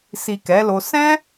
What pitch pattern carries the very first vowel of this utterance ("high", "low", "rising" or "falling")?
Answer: low